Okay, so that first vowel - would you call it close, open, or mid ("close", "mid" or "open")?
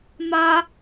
open